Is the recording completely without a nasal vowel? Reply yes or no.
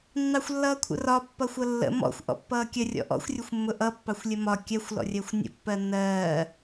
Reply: yes